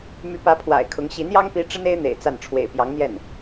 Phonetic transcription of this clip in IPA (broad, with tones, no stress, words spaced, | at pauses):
my˧˥pä˧˥ pʰwa̰˨˩ɪ̯kʰʊ˧˥ŋ ɕi˧˥njɑ˥ŋpi˧˥ ʈ͡ʂə˥ne˥ɪ̯ n̪ḛ˨˩ɪ̯ t͡sa˥˩n ʈ͡ʂʰwḛ˨˩ɪ̯pjɑ˧˥ŋn̪jɛ˥˩n